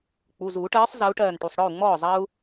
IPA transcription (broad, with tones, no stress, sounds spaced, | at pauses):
k͡p u˩˧˩ z uː˨˩˦ ʈ ɜː˨˥ sˤ z ɜ˨˥ u̯ ʈ ɜː˧˩ n ʈ u˩˧˩ sˤ ɽ ɔ˥˩ u̯ ŋ͡m ɔː˥˩ zˤ ɐ˦ u̯